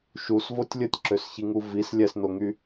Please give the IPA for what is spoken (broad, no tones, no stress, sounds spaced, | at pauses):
ʃ u s v o tʲ lʲ ə tʲ ǁ ø s ç i ŋ u v i s lʲ ɛ s n o ŋ y